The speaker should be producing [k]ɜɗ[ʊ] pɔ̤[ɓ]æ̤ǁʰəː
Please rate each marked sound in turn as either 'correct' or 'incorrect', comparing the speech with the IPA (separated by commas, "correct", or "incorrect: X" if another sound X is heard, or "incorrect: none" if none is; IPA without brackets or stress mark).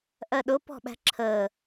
incorrect: ʔ, correct, correct